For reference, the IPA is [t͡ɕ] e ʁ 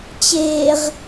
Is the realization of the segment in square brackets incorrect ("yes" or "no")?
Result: no